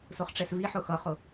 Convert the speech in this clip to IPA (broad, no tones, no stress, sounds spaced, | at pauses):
s ʊ χ ʈ͡ʂ ɛ s v i ħ ʊ x ʌ χ ʊ